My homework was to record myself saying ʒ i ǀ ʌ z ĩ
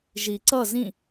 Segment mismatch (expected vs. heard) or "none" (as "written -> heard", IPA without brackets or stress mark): none